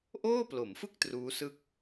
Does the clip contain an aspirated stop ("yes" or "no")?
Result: no